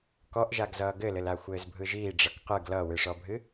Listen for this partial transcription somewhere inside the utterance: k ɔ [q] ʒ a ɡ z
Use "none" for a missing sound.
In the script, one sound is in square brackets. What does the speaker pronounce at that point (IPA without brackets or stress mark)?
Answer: ʔ